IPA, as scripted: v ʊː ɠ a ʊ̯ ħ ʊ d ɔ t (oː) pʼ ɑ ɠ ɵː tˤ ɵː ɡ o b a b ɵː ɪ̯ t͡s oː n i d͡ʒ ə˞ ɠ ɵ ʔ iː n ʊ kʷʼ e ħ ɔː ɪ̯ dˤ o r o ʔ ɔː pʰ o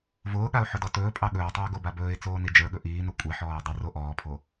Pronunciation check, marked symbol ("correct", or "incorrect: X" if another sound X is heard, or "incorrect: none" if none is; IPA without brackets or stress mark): incorrect: ɵː